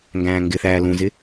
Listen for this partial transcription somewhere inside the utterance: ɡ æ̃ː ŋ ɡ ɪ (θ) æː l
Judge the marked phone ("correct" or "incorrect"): correct